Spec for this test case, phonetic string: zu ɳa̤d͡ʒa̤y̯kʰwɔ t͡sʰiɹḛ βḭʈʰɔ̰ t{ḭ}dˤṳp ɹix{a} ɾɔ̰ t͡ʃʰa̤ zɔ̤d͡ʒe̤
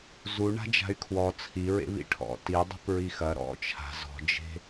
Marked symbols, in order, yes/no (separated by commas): no, no